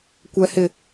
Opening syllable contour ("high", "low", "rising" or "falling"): high